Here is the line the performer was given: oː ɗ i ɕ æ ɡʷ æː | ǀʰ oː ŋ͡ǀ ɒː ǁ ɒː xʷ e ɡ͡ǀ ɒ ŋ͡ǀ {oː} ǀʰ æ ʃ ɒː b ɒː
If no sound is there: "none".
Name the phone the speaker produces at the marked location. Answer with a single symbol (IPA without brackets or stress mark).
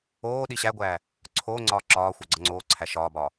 oː